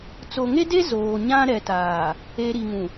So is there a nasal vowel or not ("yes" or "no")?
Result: yes